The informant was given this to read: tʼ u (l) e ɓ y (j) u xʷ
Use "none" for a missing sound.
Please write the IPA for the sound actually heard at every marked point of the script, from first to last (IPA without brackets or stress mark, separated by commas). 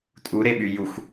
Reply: ɾ, j